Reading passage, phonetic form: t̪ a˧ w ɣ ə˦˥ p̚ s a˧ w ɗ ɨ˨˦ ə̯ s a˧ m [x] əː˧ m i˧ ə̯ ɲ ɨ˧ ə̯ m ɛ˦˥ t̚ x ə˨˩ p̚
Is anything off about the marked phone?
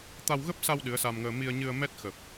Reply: yes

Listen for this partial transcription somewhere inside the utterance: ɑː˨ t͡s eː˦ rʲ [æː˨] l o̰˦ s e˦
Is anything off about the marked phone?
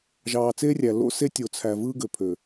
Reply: yes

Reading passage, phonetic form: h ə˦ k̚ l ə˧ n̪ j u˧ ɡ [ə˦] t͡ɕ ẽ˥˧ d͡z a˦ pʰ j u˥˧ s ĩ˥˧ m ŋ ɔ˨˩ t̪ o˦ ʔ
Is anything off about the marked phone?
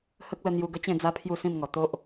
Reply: no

